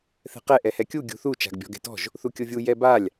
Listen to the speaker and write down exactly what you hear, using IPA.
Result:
θ ɛ̤ q ɛ ʔ ɛ h ɛ kʲ u ɡʲ ṳ θ u t͡ʃ a̤ ɡ bʲ ɔ̤ ɡ ɛ̤ t ɔ̤ ʒ | θ u kʲ ʊ vʲ u j ɛ b a lʲ

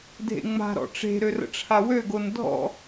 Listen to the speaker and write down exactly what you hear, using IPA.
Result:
dʱ ḛ ŋ͡m a̤ ɾ ɔ̰ ʈ͡ʂ e̤ ɾ ø r ə̰ ʈ͡ʂʰ a w ø ɡ o n dʱ ɔ̰

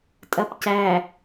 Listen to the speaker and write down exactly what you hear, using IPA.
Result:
tʼ ɐ p c æ

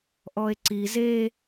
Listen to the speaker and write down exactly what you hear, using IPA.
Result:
ʔ ɔ e̯ ǀ i z e

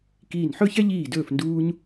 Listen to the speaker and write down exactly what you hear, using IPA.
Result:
k iː˧˩ n ħ ɵ˥˧ ç ɛ˥ ʎ iː˧˩ d ɵː˧˩ f n d uː˧ ɲ

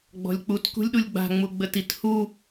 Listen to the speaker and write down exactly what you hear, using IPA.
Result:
ɡ͡b ɔ̤ lʲ k͡p u t k ṳ lʲ ɗ u lʲ ɡ͡b a̤ ŋ͡m u ɡ͡b ə t i t h u

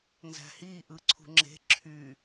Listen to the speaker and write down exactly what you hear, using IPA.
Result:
n z æ̤ h i ʔ ɯ ǀʰ ṳ ŋ͡ǁ e̤ ǁʰ y

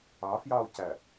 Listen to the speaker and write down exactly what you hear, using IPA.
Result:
ɑ f j ɑ o̯ c æ

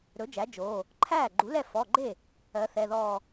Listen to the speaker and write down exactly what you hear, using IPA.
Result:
ɾ ɵ˩˥ d͡ʒ æ˩˥ d͡ʒ oː˩˧˩ | ǃʰ æː˥˩ ɡ͡ǃ u˩˥ l ɛ˥˩ f ɔ˩˧˩ ɡ͡ǃ e˥˩ | ɜ˩˥ θ ɛ˩˧˩ ð ɔː˥˩

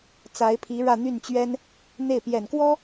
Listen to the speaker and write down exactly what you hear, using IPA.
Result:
t͡s a˧˥ ɪ̯ pʰ i˧˥ ɻ ä˥˧ n̪ y˥˩ n t͡ɕ ɥ ɛ˥ n | n̪ e˥˩ ɪ̯ p j ɛ˨˩ n k w ɔ˥

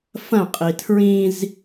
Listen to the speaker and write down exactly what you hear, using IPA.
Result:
f ɐ̃ qʼ i tʰ ɹ ĩ z

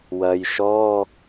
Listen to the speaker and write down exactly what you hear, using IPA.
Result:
w ɐ˨ j ʃ ɔ˧˥˧

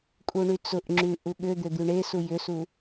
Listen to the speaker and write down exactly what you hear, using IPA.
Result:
kʼ u ɳ y t͡s ʊ ʔ ŋ͡ǁ y ʔ u ɠ ʏ d̪ ʏ d̪ y ɳ e s u j ʏ s u

